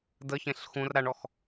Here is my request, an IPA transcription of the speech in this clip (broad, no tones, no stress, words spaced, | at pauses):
dəçẽɬ xũr ɾaɳɔx